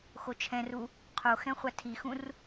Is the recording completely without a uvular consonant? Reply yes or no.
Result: no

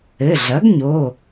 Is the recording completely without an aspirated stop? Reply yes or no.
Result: yes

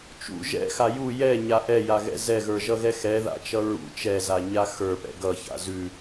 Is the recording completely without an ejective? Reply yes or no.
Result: yes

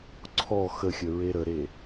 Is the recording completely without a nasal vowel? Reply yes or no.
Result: yes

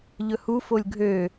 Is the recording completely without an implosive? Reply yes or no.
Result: yes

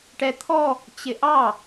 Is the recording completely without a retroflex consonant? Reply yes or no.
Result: no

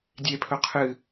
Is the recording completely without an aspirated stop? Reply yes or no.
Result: no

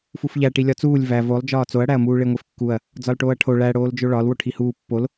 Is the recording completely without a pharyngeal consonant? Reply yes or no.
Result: yes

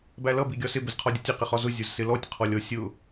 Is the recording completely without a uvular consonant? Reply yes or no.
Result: no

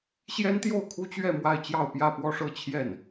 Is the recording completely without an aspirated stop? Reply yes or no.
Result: no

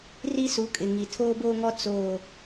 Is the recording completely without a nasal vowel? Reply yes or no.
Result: yes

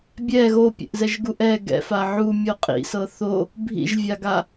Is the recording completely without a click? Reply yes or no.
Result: yes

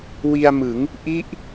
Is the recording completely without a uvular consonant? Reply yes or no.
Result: yes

